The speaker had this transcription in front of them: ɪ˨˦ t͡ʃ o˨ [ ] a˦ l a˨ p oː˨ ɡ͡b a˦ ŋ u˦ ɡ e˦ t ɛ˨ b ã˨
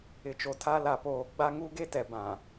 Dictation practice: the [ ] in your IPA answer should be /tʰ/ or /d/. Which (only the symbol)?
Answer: tʰ